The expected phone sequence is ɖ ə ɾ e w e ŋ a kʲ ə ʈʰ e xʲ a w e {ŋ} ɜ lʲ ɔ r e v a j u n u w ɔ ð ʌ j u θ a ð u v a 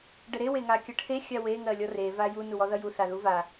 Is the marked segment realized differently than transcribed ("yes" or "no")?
no